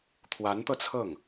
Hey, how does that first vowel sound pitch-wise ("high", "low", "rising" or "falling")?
rising